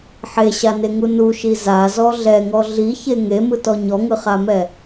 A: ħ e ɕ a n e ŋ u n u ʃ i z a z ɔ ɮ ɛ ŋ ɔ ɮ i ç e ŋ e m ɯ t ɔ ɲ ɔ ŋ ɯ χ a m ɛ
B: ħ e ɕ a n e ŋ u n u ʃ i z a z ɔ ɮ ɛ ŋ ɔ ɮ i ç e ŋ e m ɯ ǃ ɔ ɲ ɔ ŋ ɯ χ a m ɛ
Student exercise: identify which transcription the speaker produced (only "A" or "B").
A